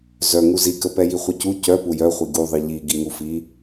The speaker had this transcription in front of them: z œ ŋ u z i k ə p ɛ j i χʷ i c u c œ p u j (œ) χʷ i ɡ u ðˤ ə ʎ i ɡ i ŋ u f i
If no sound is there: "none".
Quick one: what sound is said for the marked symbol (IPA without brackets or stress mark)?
œ